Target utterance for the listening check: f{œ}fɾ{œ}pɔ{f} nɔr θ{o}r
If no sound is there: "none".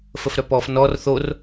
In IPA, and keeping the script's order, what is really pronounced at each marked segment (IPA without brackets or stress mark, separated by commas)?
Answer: ə, œ, f, o